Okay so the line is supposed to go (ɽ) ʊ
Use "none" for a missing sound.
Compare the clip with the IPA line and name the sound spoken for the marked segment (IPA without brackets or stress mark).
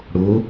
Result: ɽ